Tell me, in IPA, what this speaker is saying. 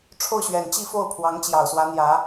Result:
ʈ͡ʂʰo˥˩ʊ̯ɕɥɛ˨˩n t͡ɕi˥˧fo˥˩ʊ̯pʰwɑ˧˥ŋ t͡ɕjɑ˨˩ʊ̯swä˧˥n̪jä˧˥

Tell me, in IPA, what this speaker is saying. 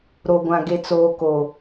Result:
ɾo˨ɡʷã˨ ɡe˨t͡soː˨ko˨

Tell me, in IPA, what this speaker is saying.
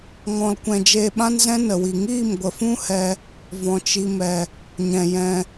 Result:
ŋɔ̃˧lkʷɛ̃˧ d͡ʒeː˧ɓã˦nzɛ̃˦ nə˨wi˨ ŋiː˦˨mɡʷə˨fũ˦ hɛ˦ | vɔ̃˨t͡ʃi˧mɛ˨ | ɲɛ̃˨jɛ̃˧

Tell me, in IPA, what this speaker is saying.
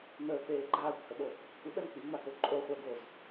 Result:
n̪əːk͡peː ɡ͡ǃaːkʷhəɓo | kʷəɓɛm k͡piŋ͡mako ǃʼoχʷəːɡoːz

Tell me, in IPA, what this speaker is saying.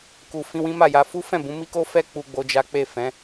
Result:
ku˨fĩ˧wĩ˦ ma˦˨ja˧ fu˦fɛ̃˦˨bũ˨˦ mi˦ko˦fɛ˦ k͡pu˧ɡ͡bo˧d͡ʒa˦ k͡pe˦˨fɛ̃˨˦

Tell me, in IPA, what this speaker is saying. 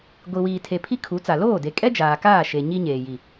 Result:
ɡʷi˨wiː˨tʰe˨ pʰi˦kʰu˨˦t͡sa˨ loː˦˨de˨kʼɛ˦ d͡ʒaː˨kaː˦˨ ʃe˨ ɲi˦ ɲeː˨ ji˨

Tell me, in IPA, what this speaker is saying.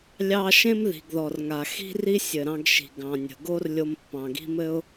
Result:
lʲɑ˧ ʃẽ˥mði̤˩ɡðɔ˩rŋa˩ xi̤˥ ri˥sʲɘ˩ɾɑ̃˧ɡʃi̤˩ ɡɑ̃˩nʲə̤˩ɡo˥r lʲo˧mpːɑ̃˩ɡi̤˥ mɘ˥ʊ̯

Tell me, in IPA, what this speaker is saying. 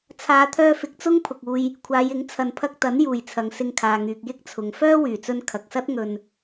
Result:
t͡sʰaː˨˧t̪ʰœː˧ fɪ˨k̚t͡sʊ˥ŋ pʰʊ˨k̚uː˧j | kʷʰaː˨˧jɪ˨˥ŋ t͡sʰɐ˨n pʰɐ˧k̚t̪ɐ˨˥njuː˨˩j t͡sʰɐ˨ŋsɪ˧ŋkʰaː˨ŋyː˨k̚ jɪ˥k̚t͡sʰʊ˨ŋ fœː˥wyː˨˩t͡sɵ˧n kʰɐ˨k̚sɐ˥t̚ ŋɵ˧n

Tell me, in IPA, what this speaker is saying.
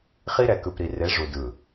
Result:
χi˦ɾɛ˨ kɯ˨pɾi˨re˨˦ ʐu˨dɯ˨

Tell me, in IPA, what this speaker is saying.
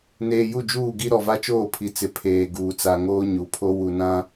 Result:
neː˨ju˦˨d͡ʒuː˦˨ɡi˦ ɾɔ˨va˦t͡ʃoː˦˨pʰi˨ t͡sɪ˨ pʰeː˨ ɡuː˨t͡sa˨ ŋoː˦ɲu˨pʰo˦ wu˨nã˦

